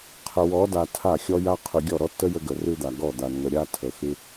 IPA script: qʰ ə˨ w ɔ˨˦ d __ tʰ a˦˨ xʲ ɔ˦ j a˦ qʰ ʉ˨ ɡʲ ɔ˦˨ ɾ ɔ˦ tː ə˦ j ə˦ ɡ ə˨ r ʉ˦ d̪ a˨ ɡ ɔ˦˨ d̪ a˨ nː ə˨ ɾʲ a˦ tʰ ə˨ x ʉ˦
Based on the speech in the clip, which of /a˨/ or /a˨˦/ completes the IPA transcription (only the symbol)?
a˨